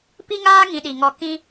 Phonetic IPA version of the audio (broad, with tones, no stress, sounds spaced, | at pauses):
p i˦ ŋ aː˦ ŋ ĩ˧ ɗ i˨ ŋ ɔ˧ k ĩ˦